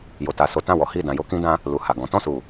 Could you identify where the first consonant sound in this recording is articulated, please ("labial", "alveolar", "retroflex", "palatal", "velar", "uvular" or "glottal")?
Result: palatal